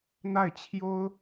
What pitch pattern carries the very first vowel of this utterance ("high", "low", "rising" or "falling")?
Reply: falling